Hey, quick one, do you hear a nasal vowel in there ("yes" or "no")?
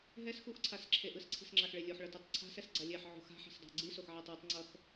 no